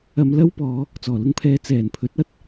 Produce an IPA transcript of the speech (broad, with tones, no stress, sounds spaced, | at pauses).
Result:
ɐ˧ m l ɐ˥ w p ɔː˨˧ | t͡s ɔː˨˩ l ʊ˧ ŋ pʰ ɛː˨˧ t͡s ɛː˨˩ n pʰ ɵ˨˥ t̚ ɐ˥ t̚